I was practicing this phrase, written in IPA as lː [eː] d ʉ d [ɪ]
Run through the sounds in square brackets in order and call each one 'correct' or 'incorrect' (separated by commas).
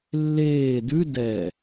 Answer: correct, incorrect